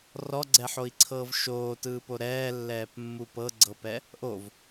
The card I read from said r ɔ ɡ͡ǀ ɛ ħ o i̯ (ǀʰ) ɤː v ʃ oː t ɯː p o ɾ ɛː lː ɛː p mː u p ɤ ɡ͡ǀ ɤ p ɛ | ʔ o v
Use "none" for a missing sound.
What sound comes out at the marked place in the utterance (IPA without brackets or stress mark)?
ǀʰ